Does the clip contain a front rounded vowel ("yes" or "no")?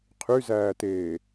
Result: yes